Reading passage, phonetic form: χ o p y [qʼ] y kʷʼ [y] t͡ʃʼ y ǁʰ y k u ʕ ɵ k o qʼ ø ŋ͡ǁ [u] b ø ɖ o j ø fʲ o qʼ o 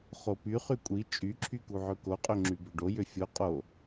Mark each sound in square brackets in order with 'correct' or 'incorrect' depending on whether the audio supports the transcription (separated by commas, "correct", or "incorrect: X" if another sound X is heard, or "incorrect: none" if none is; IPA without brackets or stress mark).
incorrect: χ, incorrect: i, incorrect: y